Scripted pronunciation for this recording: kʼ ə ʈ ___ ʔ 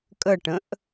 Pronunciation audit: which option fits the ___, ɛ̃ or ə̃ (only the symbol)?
ə̃